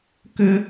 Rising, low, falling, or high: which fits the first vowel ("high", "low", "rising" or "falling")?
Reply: high